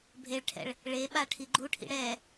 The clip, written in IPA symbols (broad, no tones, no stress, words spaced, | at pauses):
bʱeɭʈʰɛ̰ɭ | ɭeɓa ʈʰiɡ͡ǃuʈʰḭ ɽɛ